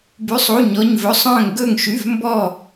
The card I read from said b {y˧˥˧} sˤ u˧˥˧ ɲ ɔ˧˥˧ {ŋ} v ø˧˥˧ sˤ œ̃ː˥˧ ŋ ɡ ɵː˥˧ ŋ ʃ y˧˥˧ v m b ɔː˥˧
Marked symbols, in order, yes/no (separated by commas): yes, no